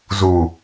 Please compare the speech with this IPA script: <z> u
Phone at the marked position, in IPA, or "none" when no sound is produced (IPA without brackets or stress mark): z